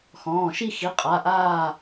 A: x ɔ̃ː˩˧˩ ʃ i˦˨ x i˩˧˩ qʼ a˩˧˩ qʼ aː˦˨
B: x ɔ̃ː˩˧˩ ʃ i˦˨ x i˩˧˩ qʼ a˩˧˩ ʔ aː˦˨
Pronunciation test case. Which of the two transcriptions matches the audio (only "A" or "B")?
B